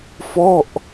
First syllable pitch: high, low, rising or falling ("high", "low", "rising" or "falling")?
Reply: falling